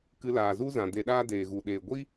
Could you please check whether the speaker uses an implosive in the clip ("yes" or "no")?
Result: yes